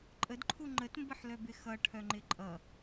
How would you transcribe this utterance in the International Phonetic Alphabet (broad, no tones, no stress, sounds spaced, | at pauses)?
ǃʼ ə d ǃʰ u ŋ͡ǃ ə t m b ə ħ l œ b ɪ x ʌ ʈʰ œ ŋ͡ǃ ɪ ǃʼ ʌ